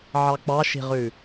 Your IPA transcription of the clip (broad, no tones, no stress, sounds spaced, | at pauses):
ʕ ɑ k͡p ɑ ʃ i̤ ʁ ʉ